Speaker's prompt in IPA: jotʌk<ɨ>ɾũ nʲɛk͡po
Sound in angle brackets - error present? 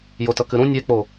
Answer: no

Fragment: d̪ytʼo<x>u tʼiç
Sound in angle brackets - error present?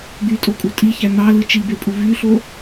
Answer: yes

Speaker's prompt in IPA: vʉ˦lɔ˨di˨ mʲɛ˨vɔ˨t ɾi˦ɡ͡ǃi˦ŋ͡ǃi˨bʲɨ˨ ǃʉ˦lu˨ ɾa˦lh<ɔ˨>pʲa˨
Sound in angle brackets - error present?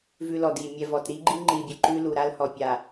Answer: no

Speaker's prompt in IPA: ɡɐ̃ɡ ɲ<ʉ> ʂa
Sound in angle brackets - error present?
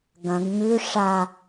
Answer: no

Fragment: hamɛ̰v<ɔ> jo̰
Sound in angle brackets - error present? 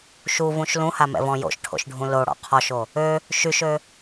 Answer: yes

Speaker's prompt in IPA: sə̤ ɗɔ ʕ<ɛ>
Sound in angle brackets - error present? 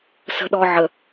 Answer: yes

